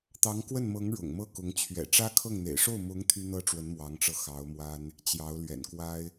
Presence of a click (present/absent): absent